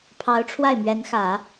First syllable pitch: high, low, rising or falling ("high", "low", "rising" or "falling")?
rising